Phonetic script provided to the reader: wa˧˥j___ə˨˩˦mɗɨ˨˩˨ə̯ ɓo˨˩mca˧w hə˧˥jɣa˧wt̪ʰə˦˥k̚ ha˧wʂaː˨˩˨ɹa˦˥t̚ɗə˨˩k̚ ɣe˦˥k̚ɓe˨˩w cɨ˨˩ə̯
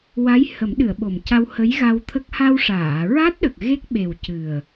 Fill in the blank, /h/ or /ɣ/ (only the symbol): h